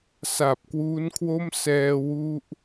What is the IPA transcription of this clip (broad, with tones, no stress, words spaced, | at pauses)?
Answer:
sa˨˩p̚kwuː˦˥nkʰwo˥˩m sɛː˧wu˦˥ʔ